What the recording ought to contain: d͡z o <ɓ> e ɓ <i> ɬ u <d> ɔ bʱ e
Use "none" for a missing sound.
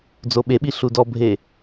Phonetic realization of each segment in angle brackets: ɓ, i, d

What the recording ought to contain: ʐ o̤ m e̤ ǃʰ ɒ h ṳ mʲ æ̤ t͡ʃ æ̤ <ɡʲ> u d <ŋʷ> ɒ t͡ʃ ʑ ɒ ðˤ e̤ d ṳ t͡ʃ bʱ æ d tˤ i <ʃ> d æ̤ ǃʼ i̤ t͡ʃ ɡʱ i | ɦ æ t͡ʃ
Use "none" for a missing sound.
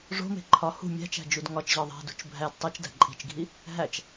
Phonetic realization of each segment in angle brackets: d͡ʒ, ŋ, t͡ʃ

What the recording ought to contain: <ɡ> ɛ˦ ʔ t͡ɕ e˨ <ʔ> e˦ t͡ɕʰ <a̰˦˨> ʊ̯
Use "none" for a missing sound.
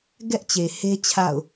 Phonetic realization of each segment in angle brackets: ɡ, h, a̰˦˨

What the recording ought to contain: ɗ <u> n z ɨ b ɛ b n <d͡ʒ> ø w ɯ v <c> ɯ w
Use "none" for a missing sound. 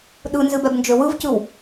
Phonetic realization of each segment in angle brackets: ɯ, d͡ʒ, c

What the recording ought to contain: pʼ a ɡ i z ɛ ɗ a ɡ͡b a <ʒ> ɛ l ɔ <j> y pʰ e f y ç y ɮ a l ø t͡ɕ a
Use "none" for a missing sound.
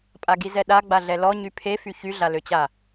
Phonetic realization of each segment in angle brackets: ɮ, ɲ

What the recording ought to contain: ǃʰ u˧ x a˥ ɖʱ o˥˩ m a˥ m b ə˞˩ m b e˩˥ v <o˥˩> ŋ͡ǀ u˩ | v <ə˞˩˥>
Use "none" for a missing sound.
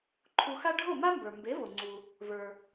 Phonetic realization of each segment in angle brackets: o˩, ə˞˩

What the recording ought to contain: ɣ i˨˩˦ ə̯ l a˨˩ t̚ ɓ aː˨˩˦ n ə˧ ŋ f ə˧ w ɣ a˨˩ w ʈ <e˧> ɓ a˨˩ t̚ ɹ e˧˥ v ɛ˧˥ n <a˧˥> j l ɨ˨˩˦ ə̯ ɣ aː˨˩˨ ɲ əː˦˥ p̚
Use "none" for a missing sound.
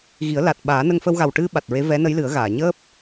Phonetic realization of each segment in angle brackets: ɨ˧, ə˧˥

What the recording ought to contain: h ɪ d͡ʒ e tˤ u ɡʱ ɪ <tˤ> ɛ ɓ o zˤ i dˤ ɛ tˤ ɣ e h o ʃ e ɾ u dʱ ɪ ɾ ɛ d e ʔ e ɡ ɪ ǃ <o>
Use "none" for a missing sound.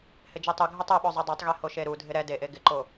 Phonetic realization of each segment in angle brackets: tˤ, o

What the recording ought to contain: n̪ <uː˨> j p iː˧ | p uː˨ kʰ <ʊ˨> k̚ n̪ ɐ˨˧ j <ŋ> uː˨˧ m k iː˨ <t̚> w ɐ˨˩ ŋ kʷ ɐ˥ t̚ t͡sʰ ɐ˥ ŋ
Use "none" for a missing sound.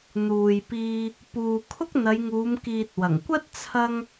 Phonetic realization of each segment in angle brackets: uː˨, ʊ˥, ŋ, t̚

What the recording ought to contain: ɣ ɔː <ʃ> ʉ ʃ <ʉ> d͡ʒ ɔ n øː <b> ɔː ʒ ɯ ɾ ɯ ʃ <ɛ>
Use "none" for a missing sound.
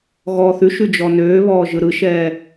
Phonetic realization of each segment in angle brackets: θ, ʉ, β, ɛː

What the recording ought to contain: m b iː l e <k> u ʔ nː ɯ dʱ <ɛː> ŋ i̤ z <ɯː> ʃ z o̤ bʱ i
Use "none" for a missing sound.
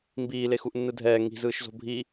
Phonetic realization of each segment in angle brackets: x, ɛː, ɯː

